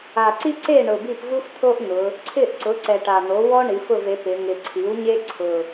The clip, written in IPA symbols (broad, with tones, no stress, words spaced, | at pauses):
a˨˩ǀi˥ǀe˥˨ ɳʊ˨˩bi˥˨p vu˥ft̪ʰo˥ʔn̪ʊ˩˧ | ǀʰɪ˥˨ʔǀʊ˩˥ ǀɛ˨˩ʈa˨˩n̪o˩˥ wɔ˥ɳi˩˧f ʊ˥˨ve˩˥pɪ˩˧ ŋɪ˨˩ǀʰi˩˥wɲe˥ ǀʰʊ˨˩